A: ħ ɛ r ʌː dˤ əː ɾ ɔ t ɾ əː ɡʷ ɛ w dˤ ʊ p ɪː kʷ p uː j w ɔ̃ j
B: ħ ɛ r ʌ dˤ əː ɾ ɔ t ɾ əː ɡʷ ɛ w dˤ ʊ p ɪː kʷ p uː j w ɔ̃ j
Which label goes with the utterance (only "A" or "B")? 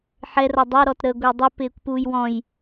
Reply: B